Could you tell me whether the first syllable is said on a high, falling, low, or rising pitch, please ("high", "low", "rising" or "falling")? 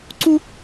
high